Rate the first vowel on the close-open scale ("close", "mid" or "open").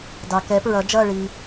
open